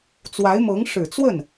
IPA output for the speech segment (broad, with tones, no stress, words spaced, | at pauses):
t͡swa˧˥ɪ̯mɤ˧˥ŋ ʂɻ̩˨˩t͡swə˥˩n